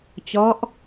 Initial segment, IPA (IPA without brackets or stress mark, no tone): t͡ɕ